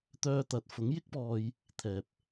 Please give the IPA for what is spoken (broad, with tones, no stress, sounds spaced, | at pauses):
t̪ œː˧ t̪ ɐ˨˥ t̚ f ʊ˨˥ ŋ j ɪ˥ k̚ p ɔː˧ j | t̪ʰ ɛː˨ p̚